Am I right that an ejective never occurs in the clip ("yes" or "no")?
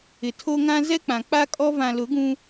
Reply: no